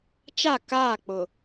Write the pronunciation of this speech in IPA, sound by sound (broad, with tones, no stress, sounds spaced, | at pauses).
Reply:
t͡ʃ a˦˨ k aː˦˨ k͡p ʊ˨